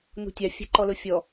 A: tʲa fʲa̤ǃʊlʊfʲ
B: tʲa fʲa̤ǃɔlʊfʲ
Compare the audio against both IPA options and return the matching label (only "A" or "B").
B